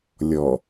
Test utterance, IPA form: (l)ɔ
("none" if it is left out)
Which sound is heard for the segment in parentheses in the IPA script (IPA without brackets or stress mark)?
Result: lʲ